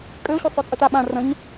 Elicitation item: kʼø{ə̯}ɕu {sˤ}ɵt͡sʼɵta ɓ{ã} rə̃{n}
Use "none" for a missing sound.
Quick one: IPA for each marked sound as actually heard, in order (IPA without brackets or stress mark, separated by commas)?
ʊ̯, sˤ, ã, ɲ